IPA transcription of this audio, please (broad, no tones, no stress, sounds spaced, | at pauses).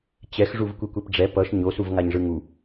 t͡ɕ ɛ x ʐ u v kʷ i kʷ e p ɖ͡ʐ ɛ p ʌ ʃ ɲ o s u v ŋ a ɲ ʐ ɯ ŋ u